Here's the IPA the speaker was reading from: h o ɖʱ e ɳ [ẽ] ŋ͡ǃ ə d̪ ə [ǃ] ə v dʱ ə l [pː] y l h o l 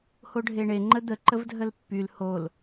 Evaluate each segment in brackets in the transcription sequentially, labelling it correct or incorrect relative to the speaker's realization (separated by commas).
incorrect, correct, correct